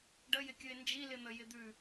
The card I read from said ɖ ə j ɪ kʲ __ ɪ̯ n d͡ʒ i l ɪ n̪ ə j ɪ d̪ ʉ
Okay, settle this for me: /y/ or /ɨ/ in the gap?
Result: ɨ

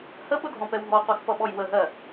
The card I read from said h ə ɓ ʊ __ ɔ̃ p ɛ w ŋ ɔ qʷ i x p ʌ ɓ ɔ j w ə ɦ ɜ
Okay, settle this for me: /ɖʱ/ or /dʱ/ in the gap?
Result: dʱ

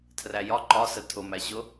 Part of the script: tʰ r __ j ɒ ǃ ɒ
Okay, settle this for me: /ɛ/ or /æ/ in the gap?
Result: æ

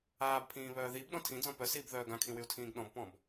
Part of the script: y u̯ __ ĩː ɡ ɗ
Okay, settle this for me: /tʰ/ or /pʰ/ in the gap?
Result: tʰ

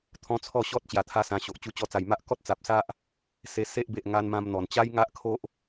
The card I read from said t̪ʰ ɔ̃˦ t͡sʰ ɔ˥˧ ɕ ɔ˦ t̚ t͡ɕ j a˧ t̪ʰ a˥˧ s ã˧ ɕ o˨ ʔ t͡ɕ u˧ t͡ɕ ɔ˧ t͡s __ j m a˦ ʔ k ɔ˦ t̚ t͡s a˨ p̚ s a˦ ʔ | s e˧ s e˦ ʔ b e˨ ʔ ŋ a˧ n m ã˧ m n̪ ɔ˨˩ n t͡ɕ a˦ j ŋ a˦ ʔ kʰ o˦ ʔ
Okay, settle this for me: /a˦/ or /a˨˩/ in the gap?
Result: a˨˩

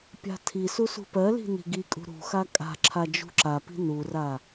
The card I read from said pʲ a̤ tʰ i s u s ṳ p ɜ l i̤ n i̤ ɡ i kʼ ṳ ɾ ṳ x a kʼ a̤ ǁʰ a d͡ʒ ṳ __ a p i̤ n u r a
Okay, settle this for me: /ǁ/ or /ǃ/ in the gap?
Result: ǁ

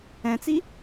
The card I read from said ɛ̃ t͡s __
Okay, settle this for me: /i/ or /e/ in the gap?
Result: i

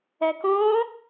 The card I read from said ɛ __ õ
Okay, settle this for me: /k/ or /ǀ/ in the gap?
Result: k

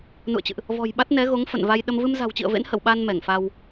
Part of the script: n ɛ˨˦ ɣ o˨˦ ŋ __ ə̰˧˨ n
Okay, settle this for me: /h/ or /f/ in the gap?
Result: f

